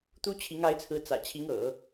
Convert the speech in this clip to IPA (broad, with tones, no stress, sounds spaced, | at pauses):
t̪ u˥ t͡ɕʰ i˧˥ ŋ a˧˥ ɪ̯ t͡sʰ ɹ̩˧˥ t͡s ä̰˨˩ t͡ɕʰ i˧˥ ŋ ɤ̰˨˩˦